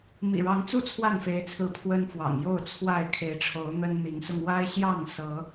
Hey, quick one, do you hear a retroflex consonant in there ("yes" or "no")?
yes